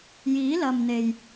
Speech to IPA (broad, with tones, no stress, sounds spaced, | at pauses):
j iː˨˥ l ɐ˨ m n̪ e˨ j